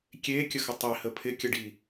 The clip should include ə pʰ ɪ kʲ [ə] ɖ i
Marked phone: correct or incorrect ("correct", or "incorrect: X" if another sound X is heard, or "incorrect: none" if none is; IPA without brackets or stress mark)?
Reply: correct